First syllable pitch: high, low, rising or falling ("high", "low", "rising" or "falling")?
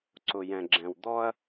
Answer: low